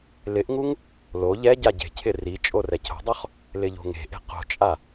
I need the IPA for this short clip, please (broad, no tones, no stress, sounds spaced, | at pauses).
l ɪ ʔ ŋ u ŋ | l o ʎ ɛ ɟ a ɟ e̤ cʰ ɪ r i t͡ʃʼ o r ɛ cʰ o̤ dˤ o χ | l ɪ ʎ o̤ ŋ e̤ ʔ e̤ q o̤ t͡ʃʼ a